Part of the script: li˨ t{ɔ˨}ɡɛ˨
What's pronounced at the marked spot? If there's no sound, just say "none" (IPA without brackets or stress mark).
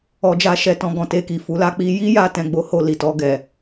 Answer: ɔ˧